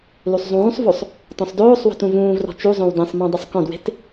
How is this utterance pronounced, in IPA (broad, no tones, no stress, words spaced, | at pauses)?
lusˤzˤũːsˤvosˤ | tɔ̃sˤdoːsˤwɔ̤t ũvũːvrɔ̤ t͡ʃuzˤõw dẽsˤmõ dˤʊsˤkɔ̃dwe̤t